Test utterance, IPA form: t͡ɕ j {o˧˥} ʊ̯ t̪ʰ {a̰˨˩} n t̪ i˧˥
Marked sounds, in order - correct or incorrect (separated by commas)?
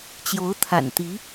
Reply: correct, correct